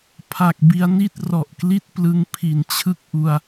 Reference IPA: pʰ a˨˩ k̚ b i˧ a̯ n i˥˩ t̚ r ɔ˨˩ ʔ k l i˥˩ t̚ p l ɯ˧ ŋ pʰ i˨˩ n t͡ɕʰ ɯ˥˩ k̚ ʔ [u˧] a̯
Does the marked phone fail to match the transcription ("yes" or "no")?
no